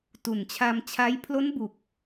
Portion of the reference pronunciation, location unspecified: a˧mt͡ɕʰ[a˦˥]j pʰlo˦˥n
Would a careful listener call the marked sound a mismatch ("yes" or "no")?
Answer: no